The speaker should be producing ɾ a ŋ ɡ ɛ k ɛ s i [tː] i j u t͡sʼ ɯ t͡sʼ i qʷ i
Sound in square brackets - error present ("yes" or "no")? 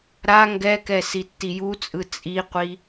no